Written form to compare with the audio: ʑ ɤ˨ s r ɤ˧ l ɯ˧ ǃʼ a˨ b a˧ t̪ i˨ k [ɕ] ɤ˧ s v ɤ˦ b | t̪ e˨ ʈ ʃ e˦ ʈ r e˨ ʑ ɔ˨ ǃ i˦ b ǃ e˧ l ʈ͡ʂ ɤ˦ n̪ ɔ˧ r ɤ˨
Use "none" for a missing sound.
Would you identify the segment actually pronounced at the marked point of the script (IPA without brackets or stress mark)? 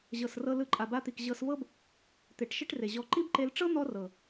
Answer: ʑ